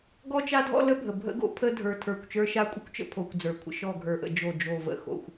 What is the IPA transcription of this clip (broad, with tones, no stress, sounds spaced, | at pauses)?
ɡ ɔ˦ t͡ʃ a˦ dʱ ɔ̰˦ l ə˦ bʱ ə˨ bʱ ə̰˦ ɡ o̰˦ pʰ ə˦ dʱ ə˞˦ tʰ ə˞˦˨ kʷ t͡ʃ ə˞˦ ʃ a˦ kʷʼ ə˦ kʷ t͡ʃ ə̰˦ pʰ o˨ kʷ d͡z ə˞˨ kʷʰ ə̰˦ ʃ ɔ˦˨ ɡʱ ə˞˨ ʔ ə̰˨ d͡ʒ o˦˨ d͡ʒ o˦˨ v ə̰˨ x o̰˨ xʷ